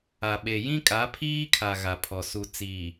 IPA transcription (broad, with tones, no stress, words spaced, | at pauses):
a˨ɓe˨jĩ˦ kʼa˨˦pʰiː˦kʰa˨ ɣa˨pʰɔ˨ su˨t͡siː˨